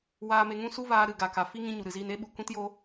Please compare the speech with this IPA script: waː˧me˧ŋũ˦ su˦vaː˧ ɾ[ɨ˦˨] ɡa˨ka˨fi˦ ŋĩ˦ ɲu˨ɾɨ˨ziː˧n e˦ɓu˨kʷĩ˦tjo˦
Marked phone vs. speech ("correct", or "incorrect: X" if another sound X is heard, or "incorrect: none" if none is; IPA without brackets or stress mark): incorrect: ɨ˨